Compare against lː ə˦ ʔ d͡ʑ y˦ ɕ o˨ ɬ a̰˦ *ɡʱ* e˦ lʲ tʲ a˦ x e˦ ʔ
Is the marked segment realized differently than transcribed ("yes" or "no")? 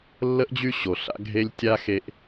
no